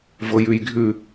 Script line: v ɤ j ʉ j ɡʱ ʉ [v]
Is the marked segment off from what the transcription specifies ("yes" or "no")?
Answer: yes